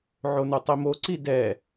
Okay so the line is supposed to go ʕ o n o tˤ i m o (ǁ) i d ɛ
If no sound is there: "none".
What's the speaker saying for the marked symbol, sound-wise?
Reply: ǀ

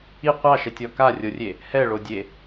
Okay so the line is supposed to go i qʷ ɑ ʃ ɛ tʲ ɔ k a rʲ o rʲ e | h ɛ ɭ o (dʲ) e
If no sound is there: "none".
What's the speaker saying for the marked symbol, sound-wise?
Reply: dʲ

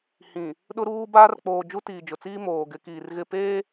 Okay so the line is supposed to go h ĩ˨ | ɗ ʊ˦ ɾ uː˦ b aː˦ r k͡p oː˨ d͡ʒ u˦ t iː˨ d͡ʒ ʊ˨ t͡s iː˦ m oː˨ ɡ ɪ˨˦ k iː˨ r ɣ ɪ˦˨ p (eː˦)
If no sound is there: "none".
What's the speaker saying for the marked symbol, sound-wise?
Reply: eː˦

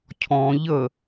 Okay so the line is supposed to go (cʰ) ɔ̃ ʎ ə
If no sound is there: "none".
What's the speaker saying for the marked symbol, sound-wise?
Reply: cʰ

